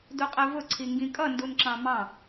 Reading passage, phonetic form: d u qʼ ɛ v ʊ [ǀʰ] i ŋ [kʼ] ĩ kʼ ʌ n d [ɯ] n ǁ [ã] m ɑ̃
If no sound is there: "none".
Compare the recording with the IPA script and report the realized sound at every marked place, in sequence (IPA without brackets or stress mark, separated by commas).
ǀʰ, ɡ, u, ɑ̃